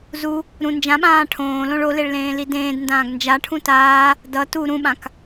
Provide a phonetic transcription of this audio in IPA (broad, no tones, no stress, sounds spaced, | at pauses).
z u | ɾ ũ n d͡ʒ ã ɓ ãː ʈʰ õː l õ ɭ o l e ɭ l ẽː l i d ẽː d n d ãː ɡ n d͡ʒ a ʈʰ ũ t aː | d ʌ t u ɾ ũ ɓ ã k